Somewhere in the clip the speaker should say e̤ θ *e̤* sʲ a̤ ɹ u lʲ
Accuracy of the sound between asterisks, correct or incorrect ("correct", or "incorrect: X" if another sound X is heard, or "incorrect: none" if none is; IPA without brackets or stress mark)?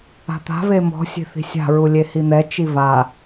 incorrect: i̤